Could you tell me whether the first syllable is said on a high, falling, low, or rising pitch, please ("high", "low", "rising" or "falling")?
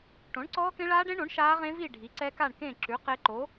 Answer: rising